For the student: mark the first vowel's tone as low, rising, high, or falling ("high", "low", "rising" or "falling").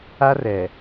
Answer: high